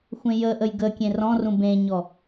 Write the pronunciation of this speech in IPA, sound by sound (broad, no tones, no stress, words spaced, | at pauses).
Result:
xʷẽjəʔəj ɡə kʲẽrɔ̃rũ bẽɲɔ